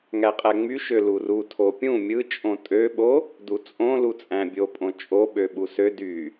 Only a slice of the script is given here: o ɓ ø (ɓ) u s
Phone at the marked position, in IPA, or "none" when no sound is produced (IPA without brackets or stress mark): ɓ